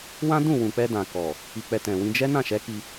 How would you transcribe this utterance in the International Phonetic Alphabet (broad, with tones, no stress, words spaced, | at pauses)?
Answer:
wã˦dũ˦˨ wũ˨k͡pɛ˧ dã˨ kɔ˨ | i˨k͡pɛ˨ tɛ̃˨wĩ˧ d͡ʒɛ˦ nã˦˨ʃɛ˨˦ ki˧